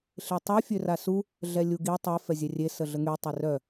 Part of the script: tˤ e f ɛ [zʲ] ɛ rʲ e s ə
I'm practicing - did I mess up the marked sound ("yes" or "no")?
no